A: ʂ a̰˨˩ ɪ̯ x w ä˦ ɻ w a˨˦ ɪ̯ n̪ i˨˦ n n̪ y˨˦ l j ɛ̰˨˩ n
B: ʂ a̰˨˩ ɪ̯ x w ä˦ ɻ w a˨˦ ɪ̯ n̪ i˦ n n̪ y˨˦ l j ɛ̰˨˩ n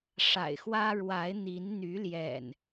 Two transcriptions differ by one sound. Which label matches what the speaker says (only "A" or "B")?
A